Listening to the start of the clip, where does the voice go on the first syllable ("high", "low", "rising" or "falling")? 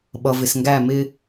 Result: low